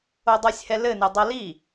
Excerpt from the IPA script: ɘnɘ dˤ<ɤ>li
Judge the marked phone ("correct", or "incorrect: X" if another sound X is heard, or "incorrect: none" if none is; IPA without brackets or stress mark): correct